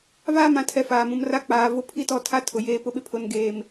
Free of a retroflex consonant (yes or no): yes